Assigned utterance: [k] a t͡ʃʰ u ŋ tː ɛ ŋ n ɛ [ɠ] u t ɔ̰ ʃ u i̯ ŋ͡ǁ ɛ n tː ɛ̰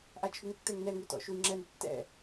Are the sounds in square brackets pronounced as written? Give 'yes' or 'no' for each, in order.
no, no

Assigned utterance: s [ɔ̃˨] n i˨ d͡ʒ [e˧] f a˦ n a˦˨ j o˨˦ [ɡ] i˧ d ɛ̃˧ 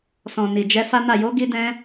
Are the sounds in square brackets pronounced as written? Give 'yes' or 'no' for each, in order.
yes, no, yes

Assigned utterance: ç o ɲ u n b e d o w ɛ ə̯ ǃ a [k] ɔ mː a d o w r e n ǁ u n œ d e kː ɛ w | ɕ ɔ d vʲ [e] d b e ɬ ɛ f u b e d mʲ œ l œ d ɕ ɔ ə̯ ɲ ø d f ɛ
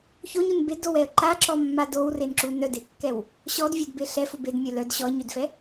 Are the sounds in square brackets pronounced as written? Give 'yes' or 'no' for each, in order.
no, no

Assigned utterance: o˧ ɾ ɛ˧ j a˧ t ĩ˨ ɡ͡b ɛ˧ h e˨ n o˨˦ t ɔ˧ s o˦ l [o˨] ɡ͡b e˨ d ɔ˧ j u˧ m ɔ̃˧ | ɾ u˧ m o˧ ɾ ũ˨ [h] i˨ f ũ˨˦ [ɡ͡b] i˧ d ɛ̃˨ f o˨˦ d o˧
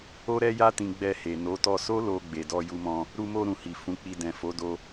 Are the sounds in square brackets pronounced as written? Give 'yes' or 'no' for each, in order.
no, yes, no

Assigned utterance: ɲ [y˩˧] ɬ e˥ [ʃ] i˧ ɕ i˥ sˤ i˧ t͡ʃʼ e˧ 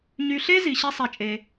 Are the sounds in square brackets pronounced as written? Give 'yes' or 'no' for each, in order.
no, no

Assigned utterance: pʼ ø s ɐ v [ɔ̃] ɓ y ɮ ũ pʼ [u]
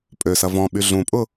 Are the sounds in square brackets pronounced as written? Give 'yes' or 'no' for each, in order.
yes, no

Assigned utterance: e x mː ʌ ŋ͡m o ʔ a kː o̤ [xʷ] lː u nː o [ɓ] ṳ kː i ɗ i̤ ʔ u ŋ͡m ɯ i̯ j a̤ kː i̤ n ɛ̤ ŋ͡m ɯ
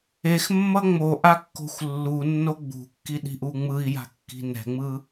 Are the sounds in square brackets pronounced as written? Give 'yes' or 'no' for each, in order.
yes, no

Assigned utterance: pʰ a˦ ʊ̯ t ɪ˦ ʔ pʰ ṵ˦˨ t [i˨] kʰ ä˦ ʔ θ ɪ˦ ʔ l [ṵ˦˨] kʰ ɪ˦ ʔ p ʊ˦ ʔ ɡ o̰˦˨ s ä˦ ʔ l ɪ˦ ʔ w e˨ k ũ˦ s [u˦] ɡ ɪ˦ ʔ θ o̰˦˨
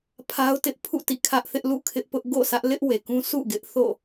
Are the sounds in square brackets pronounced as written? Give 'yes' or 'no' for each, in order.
no, yes, no

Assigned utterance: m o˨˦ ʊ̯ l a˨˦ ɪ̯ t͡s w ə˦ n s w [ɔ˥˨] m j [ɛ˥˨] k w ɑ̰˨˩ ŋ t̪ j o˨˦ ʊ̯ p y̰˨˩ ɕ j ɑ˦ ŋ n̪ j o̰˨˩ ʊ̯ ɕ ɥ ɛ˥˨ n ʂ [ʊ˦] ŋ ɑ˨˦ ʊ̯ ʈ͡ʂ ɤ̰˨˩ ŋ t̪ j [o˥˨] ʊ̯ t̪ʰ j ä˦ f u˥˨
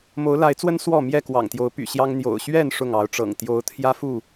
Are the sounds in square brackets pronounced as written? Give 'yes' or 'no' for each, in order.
yes, yes, no, no

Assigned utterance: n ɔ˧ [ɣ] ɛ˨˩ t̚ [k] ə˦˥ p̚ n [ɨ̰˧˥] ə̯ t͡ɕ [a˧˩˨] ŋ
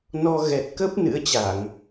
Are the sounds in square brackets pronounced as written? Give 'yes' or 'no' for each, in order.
yes, yes, yes, yes

